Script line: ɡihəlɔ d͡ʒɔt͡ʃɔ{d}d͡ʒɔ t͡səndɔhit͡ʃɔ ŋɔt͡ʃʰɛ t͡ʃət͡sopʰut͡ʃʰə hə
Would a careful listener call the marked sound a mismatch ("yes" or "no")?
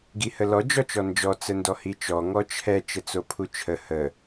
yes